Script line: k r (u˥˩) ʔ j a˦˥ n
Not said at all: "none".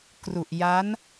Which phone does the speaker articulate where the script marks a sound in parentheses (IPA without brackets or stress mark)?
u˨˩